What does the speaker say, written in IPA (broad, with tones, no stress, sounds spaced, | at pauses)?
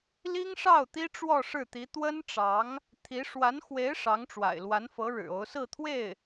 l i˥ ŋ ʂ ɑ˥˩ ʊ̯ t̪ i˥ ʈ͡ʂ w ɔ˥˧ ʂ ɻ̩˥˩ t̪ i˧˥ t̪ w ə˥ n ʈ͡ʂ ɑ˧˥ ŋ | t̪ʰ i˧˥ ʂ w a˧˥ n x w e˧˥ ɪ̯ ʂ ɑ˧˥ ŋ ʈ͡ʂ w a̰˨˩ ɪ̯ l w a˧˥ n f ɤ˧˥ ɻ ɻ̩˨˩ o˧˥ ʊ̯ s ɹ̩˥˧ t̪ʰ w e˥˩ ɪ̯